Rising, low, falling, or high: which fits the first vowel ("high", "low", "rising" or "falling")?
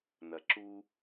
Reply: low